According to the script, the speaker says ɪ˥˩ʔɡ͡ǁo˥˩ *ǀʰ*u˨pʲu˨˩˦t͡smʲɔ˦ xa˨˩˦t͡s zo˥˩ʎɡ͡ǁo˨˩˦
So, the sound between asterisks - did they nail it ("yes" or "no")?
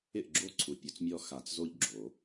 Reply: yes